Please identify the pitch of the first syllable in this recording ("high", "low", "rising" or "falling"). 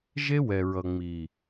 high